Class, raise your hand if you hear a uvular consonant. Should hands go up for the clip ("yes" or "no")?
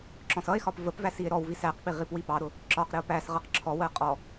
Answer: yes